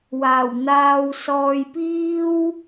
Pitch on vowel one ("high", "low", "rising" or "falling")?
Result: low